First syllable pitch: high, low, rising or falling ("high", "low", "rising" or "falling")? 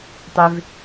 low